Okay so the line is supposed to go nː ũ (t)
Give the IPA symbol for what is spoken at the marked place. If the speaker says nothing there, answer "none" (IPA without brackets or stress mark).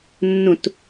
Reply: t